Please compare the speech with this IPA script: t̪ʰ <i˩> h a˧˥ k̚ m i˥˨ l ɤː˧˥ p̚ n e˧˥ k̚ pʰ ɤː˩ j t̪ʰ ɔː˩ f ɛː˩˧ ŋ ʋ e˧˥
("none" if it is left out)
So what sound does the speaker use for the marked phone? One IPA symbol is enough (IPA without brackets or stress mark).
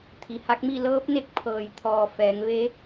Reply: i˩